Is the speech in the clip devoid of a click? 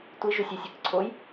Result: no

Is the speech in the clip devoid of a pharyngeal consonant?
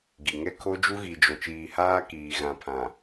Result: yes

